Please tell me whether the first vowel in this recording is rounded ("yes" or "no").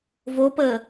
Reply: yes